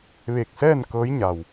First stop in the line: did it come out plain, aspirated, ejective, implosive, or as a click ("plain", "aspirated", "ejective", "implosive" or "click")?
plain